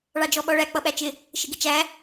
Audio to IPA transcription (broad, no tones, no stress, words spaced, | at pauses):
ɭɑd͡ʒɔɓɔɭæ k͡pʌɓæt͡ʃɪ | ʃɪɡɪt͡ʃæ